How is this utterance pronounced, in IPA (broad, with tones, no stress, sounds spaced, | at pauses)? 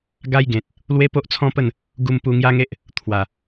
ɡ a˦ j ɡ ẽ˨ t̚ | l w e˦ p o˦ ʔ t͡sʰ ɔ̃˦ p ə˥˧ n | ɡ u˧ m p u˧ ŋ j a˦ ŋ e˦ ʔ | t̪ʰ w a˨˩